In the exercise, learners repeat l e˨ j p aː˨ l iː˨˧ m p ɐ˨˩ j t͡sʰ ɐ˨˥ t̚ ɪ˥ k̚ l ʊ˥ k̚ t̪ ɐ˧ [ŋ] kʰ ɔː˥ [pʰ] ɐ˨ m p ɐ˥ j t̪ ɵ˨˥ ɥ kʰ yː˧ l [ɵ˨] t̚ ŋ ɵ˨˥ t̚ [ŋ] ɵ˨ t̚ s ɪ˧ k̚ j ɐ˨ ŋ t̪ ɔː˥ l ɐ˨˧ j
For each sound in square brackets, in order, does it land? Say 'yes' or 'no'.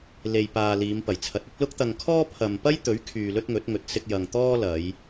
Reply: yes, yes, no, yes

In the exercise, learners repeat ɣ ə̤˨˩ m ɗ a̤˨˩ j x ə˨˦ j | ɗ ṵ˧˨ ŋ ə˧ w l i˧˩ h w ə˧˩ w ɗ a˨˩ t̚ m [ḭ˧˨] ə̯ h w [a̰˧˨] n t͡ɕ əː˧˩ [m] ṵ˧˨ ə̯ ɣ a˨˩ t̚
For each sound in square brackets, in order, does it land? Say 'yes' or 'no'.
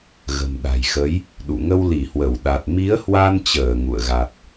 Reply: no, no, no

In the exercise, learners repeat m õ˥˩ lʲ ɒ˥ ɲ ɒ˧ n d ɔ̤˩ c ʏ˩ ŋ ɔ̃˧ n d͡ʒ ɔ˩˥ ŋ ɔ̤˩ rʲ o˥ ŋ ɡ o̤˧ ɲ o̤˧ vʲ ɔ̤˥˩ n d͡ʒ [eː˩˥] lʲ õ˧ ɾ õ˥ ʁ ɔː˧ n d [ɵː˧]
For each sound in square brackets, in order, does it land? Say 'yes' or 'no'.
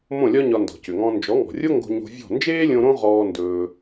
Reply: no, yes

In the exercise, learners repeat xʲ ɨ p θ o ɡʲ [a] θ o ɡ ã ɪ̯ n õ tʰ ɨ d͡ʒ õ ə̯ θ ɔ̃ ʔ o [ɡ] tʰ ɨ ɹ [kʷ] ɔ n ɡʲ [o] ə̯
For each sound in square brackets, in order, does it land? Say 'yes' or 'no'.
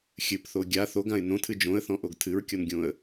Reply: yes, yes, no, no

